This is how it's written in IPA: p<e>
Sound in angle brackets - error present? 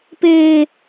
yes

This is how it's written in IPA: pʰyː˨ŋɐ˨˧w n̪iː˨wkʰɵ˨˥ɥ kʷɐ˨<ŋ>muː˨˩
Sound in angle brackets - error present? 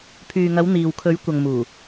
no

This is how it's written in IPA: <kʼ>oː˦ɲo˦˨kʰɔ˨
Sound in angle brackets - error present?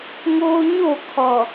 yes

